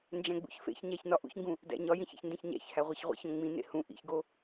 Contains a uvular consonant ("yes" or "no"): yes